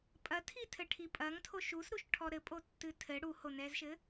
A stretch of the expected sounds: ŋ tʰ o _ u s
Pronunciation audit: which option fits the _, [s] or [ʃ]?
ʃ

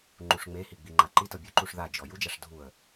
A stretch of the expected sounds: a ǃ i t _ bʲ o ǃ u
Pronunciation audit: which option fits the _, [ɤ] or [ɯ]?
ɤ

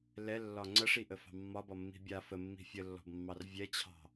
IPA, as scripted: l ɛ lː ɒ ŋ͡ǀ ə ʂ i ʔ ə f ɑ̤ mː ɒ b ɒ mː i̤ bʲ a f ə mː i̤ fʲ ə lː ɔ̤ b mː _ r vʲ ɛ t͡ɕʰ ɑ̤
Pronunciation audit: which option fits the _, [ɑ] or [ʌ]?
ɑ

